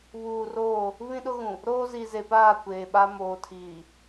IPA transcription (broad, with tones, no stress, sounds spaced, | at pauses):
β uː˨ r oː˦˨ | β ĩ˦ ɗ ʊ˦ ɣ ũ˨ | ɾ oː˦ z i˨ z e˨ p aː˦˨ kʷ eː˨ ɓ a˦ m oː˨ tʰ iː˨